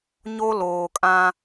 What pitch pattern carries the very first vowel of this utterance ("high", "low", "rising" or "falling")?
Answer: high